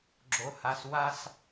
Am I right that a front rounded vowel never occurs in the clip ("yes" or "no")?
yes